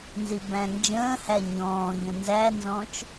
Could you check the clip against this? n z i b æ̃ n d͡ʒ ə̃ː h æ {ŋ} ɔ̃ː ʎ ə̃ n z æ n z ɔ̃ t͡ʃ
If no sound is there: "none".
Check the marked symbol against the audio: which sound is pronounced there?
ɲ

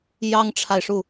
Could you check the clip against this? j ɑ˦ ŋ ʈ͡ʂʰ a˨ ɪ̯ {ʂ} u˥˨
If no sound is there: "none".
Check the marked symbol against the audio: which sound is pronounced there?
ʂ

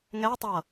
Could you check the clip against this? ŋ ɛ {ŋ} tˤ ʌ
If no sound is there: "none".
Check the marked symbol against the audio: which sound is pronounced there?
none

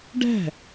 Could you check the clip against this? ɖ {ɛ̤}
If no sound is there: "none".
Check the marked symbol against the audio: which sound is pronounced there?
ɛ̤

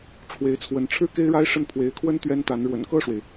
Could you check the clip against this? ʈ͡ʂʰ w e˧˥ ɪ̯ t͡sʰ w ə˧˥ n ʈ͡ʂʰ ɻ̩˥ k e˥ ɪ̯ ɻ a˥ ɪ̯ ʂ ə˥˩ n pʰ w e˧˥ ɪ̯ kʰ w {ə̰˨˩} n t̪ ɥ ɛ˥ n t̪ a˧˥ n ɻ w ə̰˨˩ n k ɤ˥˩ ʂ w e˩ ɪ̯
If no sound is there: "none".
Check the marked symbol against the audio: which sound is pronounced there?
ə˥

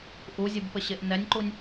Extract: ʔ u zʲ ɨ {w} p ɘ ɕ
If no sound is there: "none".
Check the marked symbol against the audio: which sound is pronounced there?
b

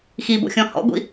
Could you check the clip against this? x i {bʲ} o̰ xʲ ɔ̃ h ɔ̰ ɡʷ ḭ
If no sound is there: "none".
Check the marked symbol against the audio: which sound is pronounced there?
b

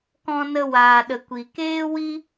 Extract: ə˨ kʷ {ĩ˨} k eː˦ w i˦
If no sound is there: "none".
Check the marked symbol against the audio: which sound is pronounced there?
i˨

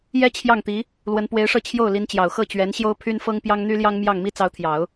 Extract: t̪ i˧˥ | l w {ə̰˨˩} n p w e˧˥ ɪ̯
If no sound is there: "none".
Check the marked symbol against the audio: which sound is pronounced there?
ə˧˥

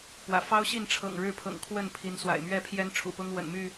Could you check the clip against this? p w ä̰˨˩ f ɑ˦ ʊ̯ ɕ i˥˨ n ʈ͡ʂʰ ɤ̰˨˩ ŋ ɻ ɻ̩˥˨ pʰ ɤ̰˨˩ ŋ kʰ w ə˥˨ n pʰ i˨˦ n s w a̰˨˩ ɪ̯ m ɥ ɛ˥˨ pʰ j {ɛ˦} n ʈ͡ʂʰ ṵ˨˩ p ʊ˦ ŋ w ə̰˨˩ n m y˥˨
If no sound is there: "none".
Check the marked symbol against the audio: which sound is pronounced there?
ɛ˦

